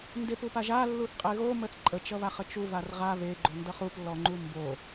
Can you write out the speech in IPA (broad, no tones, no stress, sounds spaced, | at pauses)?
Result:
n d e p u p a ʒ a lː u θ qʼ e ɣ o m ə θ ǃʼ ə t͡ʃ ʌ β a χ ə t͡ʃ u v a r ʁ a β e ɡ͡ǃ o n d ʌ χ u p lː ɔ ŋ͡ǃ u m b o